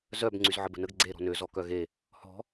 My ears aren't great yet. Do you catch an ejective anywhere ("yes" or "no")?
no